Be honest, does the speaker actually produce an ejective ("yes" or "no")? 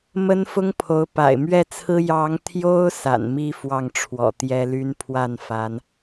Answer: no